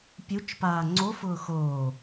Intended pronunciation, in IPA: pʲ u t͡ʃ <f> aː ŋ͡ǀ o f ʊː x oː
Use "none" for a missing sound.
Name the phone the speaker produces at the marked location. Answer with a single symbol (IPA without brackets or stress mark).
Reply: p